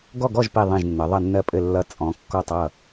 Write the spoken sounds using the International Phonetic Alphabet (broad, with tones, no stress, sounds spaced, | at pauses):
ɡ ɔ˥˨ ɡ ɔ˥˨ ʒ p i˧˩ ðˤ ĩ˧˩ ʒ nː ə˩˧ ðˤ ʌ˧˩ nː ɜ˧˩ pʼ ɘ˧˩ lː ʌ˧˩ t͡sʼ ɔ̃˩˧ kː ɔ˧˩ tˤ ʌ˧˩